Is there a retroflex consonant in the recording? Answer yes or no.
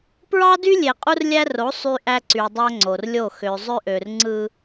no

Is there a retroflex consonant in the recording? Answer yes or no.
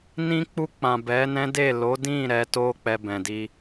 no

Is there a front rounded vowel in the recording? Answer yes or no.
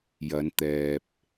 no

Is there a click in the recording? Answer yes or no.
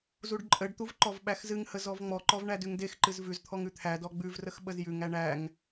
yes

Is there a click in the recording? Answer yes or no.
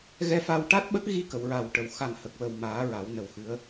no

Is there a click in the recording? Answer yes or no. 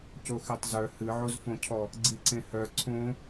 yes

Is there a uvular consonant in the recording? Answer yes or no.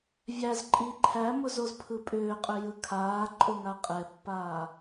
yes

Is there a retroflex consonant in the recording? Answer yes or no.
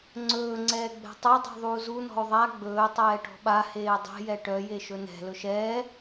yes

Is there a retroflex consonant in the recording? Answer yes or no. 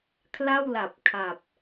no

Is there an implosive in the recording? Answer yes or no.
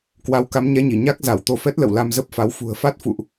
no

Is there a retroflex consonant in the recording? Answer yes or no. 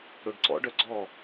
yes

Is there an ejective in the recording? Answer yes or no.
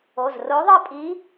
yes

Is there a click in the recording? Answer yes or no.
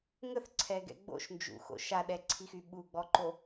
yes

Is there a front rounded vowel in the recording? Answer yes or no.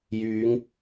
yes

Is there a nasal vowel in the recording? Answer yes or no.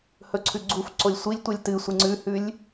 no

